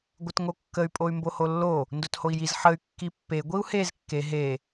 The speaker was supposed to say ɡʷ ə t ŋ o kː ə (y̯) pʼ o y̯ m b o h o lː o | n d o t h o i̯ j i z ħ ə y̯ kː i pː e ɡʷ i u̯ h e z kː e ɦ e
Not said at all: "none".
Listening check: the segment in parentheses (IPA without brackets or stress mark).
y̯